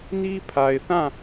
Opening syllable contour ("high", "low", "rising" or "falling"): high